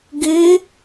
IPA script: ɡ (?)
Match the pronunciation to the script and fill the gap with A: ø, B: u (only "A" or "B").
A